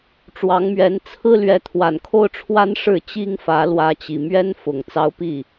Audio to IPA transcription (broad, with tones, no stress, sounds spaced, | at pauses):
ʈ͡ʂ w ɑ˧˥ ŋ m ɥ ɛ˧˥ n t͡sʰ ɹ̩˥ l ɥ ɛ˧˥ t̪ʰ w a˨˩ n kʰ o˥˩ ʊ̯ ʈ͡ʂʰ w a˥ n ʂ ɻ̩˥˩ t͡ɕ i˥ ŋ f ä˧˥ l w ä˧˥ t͡ɕ i˨˩ m ɥ ɛ˥ n f ʊ˨˩ ŋ t͡s ɑ˧˥ ʊ̯ p i˥˩